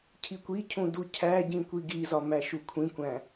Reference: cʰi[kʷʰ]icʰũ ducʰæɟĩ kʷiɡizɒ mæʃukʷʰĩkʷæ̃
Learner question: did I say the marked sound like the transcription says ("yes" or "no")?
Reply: no